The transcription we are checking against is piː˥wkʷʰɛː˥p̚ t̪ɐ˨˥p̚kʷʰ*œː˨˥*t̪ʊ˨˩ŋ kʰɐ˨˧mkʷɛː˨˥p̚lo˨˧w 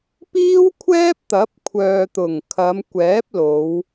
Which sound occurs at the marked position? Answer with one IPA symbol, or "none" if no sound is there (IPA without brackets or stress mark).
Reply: œː˨